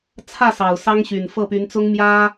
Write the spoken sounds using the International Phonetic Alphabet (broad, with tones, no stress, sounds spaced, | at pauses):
t͡sʰ ä˥˩ s ɑ˨˩ ʊ̯ s ɑ˥ ŋ ɕ y˨˩ n f ɤ˥˩ p y˧˥ n t͡s ʊ˥ ŋ m j ä˥